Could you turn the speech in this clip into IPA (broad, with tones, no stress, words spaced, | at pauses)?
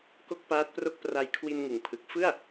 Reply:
ko˥˩k̚paː˦˥t̚pro˥˩k̚ pra˧jkʰwi˧n ŋɯ˨˩ŋpʰɯ˨˩k̚ fɯ˥˩a̯